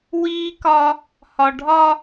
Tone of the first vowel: high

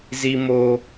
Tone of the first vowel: high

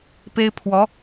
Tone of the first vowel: high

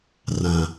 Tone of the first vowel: low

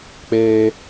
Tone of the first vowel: high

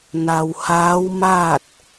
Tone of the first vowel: low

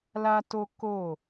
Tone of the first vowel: high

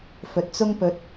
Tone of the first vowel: low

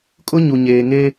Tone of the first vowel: high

